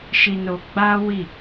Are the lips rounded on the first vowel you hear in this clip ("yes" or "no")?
no